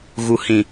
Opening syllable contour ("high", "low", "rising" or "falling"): low